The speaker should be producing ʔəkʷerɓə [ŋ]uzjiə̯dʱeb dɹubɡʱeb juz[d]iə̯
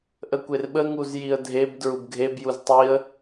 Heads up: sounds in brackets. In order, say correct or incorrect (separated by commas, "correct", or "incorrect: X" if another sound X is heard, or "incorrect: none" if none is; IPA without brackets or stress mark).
correct, incorrect: tˤ